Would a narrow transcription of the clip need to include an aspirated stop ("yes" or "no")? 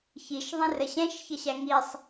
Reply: no